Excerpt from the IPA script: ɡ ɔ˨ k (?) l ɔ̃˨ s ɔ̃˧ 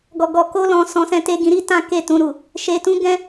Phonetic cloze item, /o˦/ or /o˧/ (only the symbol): o˧